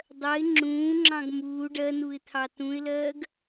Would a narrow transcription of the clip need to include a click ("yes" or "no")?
yes